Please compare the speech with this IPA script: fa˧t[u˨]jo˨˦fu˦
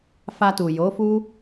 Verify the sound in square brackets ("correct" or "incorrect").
correct